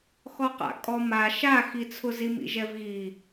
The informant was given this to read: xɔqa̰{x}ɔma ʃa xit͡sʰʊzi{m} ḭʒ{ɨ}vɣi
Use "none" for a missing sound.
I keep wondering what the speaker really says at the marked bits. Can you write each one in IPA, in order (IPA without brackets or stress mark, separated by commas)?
kʼ, m, ɛ